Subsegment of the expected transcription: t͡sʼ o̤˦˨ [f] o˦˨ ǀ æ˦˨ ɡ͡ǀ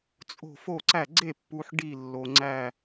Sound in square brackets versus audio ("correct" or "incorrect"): correct